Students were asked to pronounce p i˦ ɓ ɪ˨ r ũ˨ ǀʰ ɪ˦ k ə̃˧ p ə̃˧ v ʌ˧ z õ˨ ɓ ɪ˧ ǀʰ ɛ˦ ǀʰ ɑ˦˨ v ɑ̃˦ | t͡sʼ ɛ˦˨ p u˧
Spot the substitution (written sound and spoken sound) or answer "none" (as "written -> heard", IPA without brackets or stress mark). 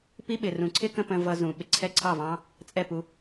õ˨ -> ũ˨